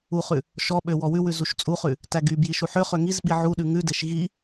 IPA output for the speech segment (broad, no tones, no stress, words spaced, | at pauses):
uχʉ | ʃɔɓø wɔwʉwʉ zuʃt͡sʼuχʉ | tæɡybji ʃuħøχø ŋizɓi ʕuɗʉ ŋʉdeʃ ɣi